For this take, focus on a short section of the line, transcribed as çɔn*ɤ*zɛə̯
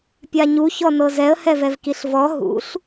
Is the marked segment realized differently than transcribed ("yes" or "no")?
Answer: no